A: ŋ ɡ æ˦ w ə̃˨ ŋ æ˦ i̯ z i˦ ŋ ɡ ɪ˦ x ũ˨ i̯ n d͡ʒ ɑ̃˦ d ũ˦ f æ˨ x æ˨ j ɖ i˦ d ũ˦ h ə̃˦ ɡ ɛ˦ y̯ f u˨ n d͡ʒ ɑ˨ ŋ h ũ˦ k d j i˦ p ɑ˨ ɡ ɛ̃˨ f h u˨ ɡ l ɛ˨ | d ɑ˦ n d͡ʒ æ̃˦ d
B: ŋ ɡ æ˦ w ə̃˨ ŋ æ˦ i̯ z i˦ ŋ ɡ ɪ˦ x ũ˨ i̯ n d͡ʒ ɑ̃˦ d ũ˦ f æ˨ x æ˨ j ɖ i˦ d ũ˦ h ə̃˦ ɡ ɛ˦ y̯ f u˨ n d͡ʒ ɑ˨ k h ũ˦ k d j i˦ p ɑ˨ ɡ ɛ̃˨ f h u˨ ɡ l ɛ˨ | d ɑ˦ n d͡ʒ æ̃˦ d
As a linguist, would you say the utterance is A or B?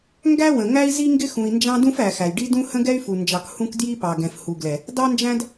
B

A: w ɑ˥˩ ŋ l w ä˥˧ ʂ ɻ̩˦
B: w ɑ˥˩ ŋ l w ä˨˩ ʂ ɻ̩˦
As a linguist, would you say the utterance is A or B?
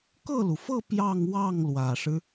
B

